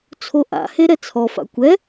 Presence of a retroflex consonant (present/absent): absent